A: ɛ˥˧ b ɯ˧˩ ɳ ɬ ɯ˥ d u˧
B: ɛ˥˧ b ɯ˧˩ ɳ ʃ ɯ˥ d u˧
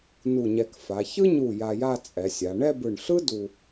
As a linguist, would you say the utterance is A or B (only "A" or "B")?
A